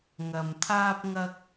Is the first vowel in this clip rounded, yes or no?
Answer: no